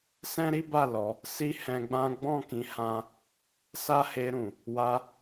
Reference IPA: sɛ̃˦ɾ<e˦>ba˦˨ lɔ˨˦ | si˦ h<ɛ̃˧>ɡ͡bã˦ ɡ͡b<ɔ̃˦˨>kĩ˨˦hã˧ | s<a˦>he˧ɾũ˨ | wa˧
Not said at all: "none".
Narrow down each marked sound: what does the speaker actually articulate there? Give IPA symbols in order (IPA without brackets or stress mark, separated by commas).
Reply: i˦, ɛ̃˧, ɔ̃˦˨, a˦